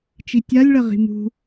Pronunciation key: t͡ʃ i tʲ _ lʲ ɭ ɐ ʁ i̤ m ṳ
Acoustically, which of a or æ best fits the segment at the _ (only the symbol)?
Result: a